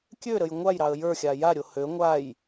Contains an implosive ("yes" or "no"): no